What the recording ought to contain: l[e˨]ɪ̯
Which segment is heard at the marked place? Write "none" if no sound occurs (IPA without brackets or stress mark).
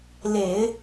e˨˩˦